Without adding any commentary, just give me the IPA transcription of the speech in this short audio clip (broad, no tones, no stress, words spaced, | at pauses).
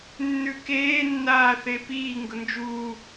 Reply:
nːʉkeːnːaː θepiː ŋɡʊnd͡ʒuː